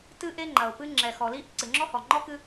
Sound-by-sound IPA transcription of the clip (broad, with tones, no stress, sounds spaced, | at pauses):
t ɨ˦ ʔ e˦ ŋ͡ǃ ɐ˨ ʊ̯ p ɨ˦ ŋ͡ǁ ɛ˨ x ɔ˨ l i˦ ʔ ǀ ɨ˨ ŋ͡ǁ ɔ˦ h ɔ˨ ŋ͡ǃ ɔ˦ k ɨ˦